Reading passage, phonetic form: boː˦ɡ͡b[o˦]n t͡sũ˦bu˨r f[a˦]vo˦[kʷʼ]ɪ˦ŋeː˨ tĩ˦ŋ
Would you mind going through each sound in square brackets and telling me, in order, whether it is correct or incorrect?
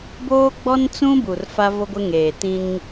incorrect: ɔ˦, correct, incorrect: ɡʷ

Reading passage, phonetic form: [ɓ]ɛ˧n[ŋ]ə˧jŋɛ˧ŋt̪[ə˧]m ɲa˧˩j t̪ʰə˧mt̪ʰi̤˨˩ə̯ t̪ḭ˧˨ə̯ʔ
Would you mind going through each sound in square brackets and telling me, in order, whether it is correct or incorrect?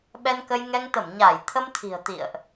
correct, incorrect: k, incorrect: ə˧˩

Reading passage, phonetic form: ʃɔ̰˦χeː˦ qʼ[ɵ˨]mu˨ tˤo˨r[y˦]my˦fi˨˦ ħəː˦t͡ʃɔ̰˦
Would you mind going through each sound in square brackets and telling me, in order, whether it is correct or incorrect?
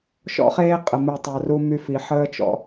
incorrect: ə˨, incorrect: u˦

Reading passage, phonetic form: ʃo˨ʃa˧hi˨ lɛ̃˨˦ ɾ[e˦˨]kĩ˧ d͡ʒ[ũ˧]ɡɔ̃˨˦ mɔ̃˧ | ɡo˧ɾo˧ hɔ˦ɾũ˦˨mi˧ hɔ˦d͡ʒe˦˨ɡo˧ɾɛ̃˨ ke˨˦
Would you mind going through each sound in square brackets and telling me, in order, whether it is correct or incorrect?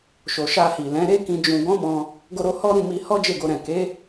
incorrect: e˦, incorrect: ũ˨

